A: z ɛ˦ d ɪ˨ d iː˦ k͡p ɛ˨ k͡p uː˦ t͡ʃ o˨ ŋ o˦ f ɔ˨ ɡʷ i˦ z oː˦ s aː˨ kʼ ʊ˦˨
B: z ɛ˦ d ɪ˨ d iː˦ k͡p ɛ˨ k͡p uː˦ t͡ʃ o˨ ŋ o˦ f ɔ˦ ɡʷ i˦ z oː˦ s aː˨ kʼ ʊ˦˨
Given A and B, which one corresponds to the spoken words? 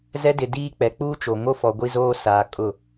A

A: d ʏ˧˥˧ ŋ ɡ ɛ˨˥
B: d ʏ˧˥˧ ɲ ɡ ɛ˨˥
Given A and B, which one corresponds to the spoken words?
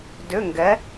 A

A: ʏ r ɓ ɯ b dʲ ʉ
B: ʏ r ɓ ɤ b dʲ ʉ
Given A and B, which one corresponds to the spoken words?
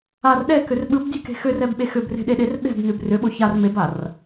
A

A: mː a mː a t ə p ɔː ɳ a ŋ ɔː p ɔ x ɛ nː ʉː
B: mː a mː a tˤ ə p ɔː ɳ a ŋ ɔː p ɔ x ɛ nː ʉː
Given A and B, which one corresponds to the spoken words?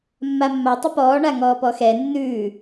B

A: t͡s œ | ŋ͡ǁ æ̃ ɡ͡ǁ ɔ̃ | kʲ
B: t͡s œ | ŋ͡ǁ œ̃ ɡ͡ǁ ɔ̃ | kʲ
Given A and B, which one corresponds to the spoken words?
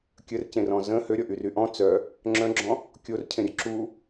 B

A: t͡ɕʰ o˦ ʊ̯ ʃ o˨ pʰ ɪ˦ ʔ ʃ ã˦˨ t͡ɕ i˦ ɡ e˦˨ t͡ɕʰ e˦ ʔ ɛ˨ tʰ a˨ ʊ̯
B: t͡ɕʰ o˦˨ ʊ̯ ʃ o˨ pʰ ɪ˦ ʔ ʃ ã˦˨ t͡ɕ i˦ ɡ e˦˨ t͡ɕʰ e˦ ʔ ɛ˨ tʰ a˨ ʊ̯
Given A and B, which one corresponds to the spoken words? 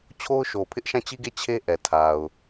A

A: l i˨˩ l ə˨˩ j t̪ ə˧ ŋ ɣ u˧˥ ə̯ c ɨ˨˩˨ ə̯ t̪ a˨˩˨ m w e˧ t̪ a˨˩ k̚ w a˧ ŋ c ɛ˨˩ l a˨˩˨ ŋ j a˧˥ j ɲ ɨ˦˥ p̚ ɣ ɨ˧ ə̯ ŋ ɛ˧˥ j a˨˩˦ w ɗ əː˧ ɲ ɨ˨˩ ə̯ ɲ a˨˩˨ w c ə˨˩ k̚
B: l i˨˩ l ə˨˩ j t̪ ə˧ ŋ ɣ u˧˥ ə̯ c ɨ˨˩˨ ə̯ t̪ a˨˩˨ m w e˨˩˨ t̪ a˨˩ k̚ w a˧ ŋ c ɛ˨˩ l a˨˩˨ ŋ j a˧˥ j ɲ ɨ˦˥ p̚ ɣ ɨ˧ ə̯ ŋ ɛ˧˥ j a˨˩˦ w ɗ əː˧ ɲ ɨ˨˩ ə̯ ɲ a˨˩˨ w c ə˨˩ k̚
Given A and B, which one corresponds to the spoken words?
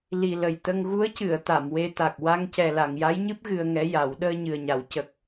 A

